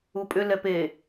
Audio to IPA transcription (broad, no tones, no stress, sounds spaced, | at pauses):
u pʼ ʏ l ɛ p e